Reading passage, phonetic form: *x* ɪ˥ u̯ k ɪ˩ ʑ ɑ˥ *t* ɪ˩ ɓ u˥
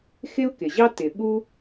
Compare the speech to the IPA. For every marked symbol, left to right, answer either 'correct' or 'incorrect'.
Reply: correct, correct

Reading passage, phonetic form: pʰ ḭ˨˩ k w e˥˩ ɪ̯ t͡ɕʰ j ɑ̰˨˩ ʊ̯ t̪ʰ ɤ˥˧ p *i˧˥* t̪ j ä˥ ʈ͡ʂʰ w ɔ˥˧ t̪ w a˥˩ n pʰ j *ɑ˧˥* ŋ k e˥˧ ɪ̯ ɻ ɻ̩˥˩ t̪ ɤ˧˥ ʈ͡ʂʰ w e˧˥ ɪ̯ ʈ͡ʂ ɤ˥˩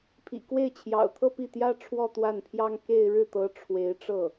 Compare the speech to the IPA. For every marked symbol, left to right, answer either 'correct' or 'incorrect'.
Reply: incorrect, incorrect

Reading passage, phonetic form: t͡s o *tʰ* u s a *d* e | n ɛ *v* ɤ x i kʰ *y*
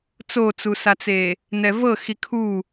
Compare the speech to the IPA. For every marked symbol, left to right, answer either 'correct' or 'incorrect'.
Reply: incorrect, incorrect, correct, incorrect

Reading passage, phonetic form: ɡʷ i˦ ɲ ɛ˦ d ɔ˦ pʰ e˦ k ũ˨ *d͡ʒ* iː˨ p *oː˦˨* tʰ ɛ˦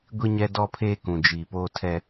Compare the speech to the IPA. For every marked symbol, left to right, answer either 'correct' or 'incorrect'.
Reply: correct, incorrect

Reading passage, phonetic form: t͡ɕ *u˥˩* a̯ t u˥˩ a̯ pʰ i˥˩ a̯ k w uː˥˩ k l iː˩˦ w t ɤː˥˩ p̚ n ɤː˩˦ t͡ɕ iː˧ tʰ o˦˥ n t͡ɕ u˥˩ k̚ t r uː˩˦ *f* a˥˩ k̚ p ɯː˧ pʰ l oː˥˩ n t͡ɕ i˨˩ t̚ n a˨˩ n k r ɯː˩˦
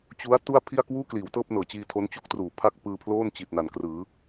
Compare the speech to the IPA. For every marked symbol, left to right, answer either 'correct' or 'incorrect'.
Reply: incorrect, incorrect

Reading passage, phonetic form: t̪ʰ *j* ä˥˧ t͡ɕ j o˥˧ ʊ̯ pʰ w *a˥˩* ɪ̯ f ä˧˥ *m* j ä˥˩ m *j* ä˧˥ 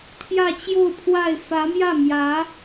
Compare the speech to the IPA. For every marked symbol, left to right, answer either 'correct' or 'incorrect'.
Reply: correct, correct, correct, correct

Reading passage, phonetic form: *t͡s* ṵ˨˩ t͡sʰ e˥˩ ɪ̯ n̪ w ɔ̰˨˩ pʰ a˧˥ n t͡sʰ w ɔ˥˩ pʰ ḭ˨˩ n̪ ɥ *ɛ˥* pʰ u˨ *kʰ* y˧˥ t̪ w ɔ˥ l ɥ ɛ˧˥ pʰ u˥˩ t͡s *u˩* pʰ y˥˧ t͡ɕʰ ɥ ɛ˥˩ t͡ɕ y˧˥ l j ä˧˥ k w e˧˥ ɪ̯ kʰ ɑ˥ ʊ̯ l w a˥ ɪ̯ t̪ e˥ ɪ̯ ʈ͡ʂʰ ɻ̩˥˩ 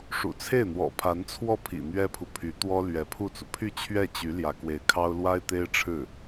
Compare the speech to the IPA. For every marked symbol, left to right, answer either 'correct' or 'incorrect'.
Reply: incorrect, correct, incorrect, correct

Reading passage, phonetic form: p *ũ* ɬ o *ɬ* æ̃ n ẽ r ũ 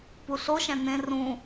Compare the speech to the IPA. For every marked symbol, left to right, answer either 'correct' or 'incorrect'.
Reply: incorrect, incorrect

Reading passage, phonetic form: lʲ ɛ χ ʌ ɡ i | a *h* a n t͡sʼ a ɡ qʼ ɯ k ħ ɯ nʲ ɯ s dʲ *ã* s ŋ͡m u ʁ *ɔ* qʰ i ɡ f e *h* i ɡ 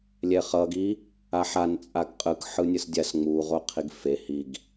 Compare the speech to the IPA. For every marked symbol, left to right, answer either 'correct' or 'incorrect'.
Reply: incorrect, incorrect, incorrect, correct

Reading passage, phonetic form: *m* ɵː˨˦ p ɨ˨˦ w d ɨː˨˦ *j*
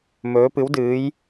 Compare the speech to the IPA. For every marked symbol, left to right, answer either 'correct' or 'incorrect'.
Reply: correct, correct

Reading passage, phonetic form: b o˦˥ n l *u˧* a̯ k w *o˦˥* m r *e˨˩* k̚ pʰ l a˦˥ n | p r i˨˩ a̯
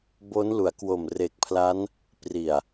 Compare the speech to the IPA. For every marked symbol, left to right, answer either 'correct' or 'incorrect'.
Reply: incorrect, incorrect, correct

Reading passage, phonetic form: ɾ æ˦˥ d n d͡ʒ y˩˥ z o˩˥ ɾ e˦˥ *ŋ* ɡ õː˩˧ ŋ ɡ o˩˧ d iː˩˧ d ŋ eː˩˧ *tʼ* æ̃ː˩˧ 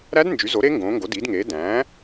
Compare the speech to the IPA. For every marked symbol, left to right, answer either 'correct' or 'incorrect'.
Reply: correct, incorrect

